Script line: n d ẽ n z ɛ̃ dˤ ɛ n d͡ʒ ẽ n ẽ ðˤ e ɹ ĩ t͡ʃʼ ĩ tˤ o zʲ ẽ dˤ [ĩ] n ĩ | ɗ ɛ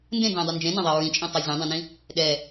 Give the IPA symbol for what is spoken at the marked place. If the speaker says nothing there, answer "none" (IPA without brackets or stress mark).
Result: ẽ